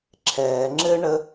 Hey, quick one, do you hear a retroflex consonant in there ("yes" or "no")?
yes